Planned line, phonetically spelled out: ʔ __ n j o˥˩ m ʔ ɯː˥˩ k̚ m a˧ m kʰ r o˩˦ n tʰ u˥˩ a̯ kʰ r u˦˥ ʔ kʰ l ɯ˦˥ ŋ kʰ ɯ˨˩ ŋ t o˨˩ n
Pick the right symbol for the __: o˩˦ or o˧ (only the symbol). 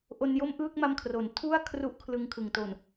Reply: o˧